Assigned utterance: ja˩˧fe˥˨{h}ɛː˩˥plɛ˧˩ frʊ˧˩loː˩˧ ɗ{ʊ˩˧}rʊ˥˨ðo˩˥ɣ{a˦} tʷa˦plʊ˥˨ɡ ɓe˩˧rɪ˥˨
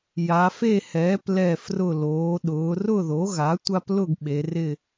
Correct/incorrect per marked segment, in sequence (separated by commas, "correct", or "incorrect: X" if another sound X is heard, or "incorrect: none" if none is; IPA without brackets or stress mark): correct, incorrect: ʊː˩˧, incorrect: a˩˥